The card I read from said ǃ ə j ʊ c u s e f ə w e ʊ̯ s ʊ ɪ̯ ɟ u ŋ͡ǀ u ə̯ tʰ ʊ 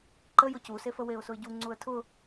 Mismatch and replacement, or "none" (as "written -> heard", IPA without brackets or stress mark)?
none